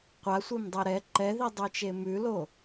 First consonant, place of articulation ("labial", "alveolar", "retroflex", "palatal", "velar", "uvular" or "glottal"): uvular